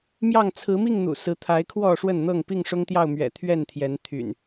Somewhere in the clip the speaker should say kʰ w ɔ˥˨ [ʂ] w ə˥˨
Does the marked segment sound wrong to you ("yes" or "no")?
no